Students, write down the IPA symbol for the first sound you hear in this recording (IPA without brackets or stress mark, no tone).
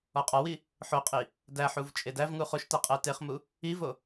ɒ